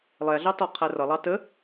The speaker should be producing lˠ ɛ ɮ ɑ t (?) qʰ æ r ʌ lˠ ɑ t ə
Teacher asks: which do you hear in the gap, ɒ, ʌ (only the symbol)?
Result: ɒ